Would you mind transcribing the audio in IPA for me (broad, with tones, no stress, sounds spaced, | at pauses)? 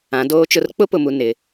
ã˨˦ d oː˦ t͡ʃ ʊ˦ r k͡p ʊ˦ p ʊ˨ m u˨ n ɪ˨˦